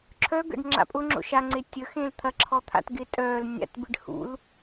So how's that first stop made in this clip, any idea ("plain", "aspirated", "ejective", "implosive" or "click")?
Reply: click